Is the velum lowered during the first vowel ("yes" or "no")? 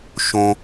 yes